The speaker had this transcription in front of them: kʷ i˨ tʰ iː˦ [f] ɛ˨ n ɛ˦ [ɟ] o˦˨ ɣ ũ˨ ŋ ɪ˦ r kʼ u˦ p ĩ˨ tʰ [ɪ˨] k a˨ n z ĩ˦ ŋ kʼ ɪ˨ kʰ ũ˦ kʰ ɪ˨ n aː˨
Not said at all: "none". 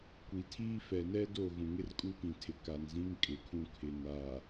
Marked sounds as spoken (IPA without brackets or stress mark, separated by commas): f, d, ɪ˨